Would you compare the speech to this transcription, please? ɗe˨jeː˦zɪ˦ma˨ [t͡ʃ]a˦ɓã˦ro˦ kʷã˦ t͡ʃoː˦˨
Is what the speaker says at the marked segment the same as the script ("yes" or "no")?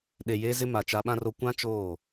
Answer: yes